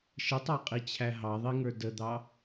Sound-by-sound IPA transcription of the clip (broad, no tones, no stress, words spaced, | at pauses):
ʃətˤɑqʼit͡ɕʰæ ɦɑðˤiŋə˞ dəd̪ɑ